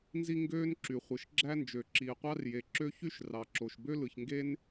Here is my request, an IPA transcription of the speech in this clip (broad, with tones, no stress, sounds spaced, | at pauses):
n z i˥ ŋ ɡ øː˥ n ǁ y˩ χʷ ɯ˩ ʃ ɡ͡ǁ æ˥ n d͡ʒ ø˩ ǁ iː˩ qʷ ɑ˥ r j e˩ ǁ ø˥ ç y˥ ʃ r ɑ˩ ǁ o˩ ʃ b ø˥ l ɯ˩ ç ŋ ɡ e˥ n